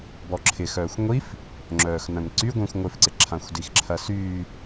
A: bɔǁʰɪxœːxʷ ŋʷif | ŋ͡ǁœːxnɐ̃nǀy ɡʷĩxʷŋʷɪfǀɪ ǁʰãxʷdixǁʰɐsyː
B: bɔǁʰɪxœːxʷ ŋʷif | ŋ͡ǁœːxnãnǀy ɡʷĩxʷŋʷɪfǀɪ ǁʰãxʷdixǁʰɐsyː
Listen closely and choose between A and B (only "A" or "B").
A